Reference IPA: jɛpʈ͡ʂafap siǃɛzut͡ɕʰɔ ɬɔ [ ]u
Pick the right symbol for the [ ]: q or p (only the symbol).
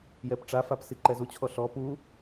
p